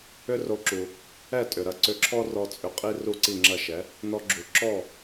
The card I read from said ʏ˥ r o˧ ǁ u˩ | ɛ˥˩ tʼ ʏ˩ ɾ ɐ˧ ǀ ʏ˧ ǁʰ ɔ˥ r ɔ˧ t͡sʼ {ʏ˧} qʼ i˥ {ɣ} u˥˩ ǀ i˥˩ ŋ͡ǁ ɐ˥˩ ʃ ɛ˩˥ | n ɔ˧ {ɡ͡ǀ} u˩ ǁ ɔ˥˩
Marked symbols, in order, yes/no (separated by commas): yes, no, no